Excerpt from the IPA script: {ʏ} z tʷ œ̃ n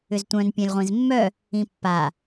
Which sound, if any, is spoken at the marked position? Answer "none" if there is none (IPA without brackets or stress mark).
ʏ